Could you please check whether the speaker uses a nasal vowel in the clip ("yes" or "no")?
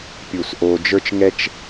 no